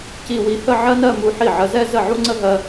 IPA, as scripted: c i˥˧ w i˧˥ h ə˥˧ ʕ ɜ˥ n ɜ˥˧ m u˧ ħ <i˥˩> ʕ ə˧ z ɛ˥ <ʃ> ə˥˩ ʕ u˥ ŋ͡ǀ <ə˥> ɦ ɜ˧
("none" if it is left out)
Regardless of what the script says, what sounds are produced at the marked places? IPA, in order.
i˥˩, z, ə˥

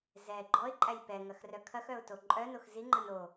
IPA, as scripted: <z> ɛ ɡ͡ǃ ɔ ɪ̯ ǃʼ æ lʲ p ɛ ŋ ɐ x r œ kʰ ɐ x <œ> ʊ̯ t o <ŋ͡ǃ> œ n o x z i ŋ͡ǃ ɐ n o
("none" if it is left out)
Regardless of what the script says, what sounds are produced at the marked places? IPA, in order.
z, œ, ǃʼ

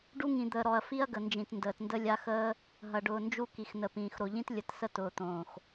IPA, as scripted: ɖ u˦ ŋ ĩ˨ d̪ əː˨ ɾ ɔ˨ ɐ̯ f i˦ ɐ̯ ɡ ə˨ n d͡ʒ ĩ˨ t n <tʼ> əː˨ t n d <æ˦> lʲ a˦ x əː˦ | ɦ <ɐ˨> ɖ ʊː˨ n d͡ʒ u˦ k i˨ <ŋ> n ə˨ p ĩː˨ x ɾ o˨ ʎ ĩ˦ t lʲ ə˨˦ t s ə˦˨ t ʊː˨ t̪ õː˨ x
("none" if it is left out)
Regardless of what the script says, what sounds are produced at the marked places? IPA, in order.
d, ə˦, ɐ˨, x

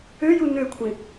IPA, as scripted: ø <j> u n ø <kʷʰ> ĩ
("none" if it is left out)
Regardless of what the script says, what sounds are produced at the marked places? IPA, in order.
j, kʷʰ

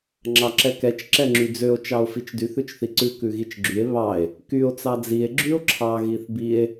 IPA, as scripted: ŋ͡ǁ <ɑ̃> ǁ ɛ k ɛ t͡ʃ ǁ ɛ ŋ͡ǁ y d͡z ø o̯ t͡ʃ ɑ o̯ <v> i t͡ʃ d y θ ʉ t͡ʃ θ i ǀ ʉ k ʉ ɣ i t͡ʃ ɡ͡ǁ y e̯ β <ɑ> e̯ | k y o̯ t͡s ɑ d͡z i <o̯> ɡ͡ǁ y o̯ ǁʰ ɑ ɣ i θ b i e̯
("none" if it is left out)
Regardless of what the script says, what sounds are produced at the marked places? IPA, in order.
ɑ, f, ɑ, e̯

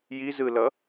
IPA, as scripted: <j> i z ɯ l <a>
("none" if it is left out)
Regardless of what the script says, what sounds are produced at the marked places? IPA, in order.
j, ʌ

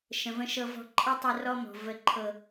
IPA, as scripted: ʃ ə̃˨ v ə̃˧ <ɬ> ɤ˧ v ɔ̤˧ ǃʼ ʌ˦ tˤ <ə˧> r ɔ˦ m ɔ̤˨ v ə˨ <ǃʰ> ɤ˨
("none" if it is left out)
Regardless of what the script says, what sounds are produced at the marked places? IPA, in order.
ʃ, ə˧, ǃʰ

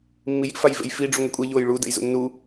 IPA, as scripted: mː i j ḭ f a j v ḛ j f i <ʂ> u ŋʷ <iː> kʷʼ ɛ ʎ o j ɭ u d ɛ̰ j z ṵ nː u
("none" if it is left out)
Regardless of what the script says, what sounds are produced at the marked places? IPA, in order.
ɖ͡ʐ, i

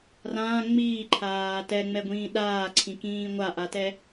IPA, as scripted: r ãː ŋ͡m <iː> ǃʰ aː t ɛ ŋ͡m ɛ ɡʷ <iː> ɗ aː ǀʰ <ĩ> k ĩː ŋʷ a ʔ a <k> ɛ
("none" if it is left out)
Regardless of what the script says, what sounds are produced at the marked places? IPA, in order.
iː, ĩː, ĩ, t

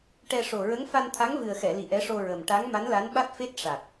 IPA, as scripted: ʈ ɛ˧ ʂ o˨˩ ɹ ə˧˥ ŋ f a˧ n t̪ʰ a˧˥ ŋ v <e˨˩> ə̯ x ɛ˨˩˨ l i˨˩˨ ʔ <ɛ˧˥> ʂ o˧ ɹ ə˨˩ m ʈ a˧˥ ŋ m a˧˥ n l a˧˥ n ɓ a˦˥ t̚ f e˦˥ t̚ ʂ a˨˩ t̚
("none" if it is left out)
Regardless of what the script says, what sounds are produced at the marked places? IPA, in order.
ɨ˨˩, ɛ˧˥

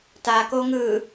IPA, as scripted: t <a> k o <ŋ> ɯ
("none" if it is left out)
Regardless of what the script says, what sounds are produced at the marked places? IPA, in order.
a, ŋ

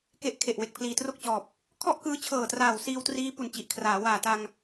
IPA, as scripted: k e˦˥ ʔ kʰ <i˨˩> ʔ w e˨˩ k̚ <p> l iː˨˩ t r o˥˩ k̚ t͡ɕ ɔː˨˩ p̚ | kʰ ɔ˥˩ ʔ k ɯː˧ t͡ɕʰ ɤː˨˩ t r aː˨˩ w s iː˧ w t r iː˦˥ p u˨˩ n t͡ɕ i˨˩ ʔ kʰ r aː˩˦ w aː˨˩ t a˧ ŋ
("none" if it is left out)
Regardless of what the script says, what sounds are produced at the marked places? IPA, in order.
e˨˩, pʰ

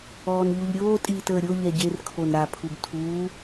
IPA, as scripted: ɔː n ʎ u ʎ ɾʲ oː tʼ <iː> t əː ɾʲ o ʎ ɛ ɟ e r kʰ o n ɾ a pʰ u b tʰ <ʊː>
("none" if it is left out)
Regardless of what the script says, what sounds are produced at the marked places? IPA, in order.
iː, uː

